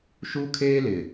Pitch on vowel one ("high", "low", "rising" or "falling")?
high